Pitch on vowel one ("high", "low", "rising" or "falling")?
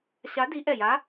rising